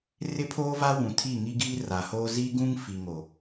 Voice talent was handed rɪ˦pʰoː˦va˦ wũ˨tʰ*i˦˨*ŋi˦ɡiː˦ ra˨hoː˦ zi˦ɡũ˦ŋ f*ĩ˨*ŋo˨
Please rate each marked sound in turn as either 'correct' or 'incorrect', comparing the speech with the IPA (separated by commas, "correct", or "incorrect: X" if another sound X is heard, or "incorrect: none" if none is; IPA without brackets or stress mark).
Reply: correct, incorrect: i˨